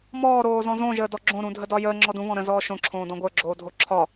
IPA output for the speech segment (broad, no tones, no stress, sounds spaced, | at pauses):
m ɔː ɾ oː z ɔ̃ z õ ʒ əː d ɔ ɡ͡ǁ õ ɾ ũ dʱ ə d ɒ j əː ŋ͡ǁ ɔ d ũ β ɔ̃ ɾ ə̃ z ɔː ʃ õ ǁʰ õː d ɔ̃ ɡʷ ə˞ ɡ͡ǁ oː dʱ o ǁʰ ɒ